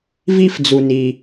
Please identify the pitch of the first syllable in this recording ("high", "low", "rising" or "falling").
high